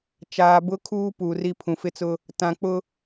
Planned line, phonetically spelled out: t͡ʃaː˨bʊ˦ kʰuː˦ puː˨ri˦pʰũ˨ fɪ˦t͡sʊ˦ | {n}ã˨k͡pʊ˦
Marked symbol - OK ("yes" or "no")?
no